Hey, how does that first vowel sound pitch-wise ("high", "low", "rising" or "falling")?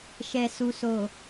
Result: low